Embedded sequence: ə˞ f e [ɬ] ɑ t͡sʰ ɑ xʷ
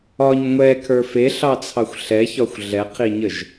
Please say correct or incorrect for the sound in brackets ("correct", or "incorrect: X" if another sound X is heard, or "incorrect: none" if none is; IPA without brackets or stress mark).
correct